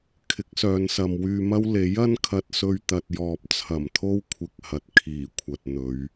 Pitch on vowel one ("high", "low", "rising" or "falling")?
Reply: rising